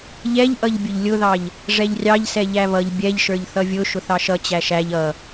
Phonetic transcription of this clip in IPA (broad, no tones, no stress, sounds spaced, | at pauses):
ʎ ɛ ʎ ʔ ʌ ʎ bʲ ʊ ʎ lʲ ʊ ð ɑ ʎ | ʐ ɛ ʎ rʲ ɑ ʎ s ɛ ʎ æ β ʌ ʎ bʲ ɛ ʎ ʃ ə˞ ʎ θ ʌ vʲ ʊ ʃ ʊ θ ɑ ʃ ʌ t͡ɕ æ ʃ æ ʎ ʌ